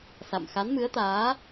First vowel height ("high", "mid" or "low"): low